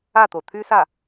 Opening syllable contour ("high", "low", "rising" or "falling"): falling